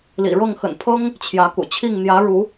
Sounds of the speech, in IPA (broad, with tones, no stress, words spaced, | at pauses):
lḭ˨˩ɻɤ˥˨ŋ xə̰˨˩npʰɤ˦ŋ | t͡ɕʰjä˨˦kṵ˨˩t͡ɕʰi˥˨ŋ n̪jä˨˦ɻu˨˦